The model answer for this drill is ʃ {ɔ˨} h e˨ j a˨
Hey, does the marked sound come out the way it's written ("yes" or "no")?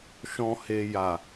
no